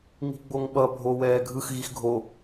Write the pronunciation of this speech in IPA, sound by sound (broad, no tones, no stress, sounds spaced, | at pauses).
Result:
ŋ i̤ ɡ͡b o ŋ ɓ ʌ bʱ o w ɛː ɡʱ ɯ x ɣ i x ɡʱ o